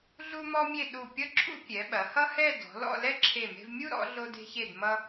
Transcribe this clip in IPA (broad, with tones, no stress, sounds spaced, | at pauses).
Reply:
ɮ u˥ m ɔ˥ mʲ e˥˧ ɗ u˧˩ pʲ ʌ˥ ǁʰ ṵ˥ pʲ ɛ˩˧ ɓ ɐ˩˧ h ʌ˥ h ɛ˥˧ d ɔ̤˩˧ l ɔ̰˥˧ l ɛ˥ ǁʰ e˧˩ m e̤˧ v mʲ u˥ ɾ ɔ̰˩˧ ɮ o˧ d e̤˧ ç e˧˩ d m ʌ˧